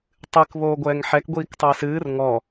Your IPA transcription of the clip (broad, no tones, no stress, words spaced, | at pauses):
tˤɨk βoːɡʷɛːŋħɛk ɡʷiːktˤɨɪ̯sɨːr ŋɔ